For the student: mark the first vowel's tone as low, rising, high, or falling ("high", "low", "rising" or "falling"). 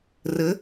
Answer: rising